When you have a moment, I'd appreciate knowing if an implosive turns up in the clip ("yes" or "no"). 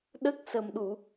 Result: yes